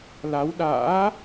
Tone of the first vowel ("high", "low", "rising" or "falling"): rising